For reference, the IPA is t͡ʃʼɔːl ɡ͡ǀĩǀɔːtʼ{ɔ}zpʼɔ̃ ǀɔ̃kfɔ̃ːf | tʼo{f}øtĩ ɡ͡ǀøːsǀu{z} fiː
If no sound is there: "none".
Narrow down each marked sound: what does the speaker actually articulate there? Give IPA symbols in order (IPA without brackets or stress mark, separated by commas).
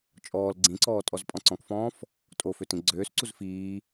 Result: ɔ, f, z